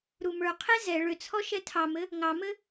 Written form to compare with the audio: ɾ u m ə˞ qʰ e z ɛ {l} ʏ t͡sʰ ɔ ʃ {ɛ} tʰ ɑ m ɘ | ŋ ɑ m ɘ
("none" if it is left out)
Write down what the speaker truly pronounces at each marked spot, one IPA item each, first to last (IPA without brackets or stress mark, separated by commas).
ɭ, ɛ